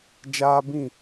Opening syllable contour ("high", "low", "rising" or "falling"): high